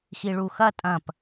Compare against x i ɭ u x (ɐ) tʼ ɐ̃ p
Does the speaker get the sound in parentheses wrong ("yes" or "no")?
no